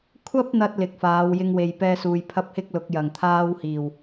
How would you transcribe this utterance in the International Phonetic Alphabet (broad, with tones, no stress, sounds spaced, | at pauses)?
kʷʰ ɐ˥ p̚ n̪ ɐ˧ t̚ l ɪ˨ k̚ f aː˨˧ w j ɪ˧ ŋ w e˨ j p ɛː˧ s uː˨ j pʰ ɐ˥ p̚ h ɪ˥ k̚ l ʊ˨˥ k̚ j ɐ˨˩ ŋ t̪ʰ aː˥ w h iː˨˩ w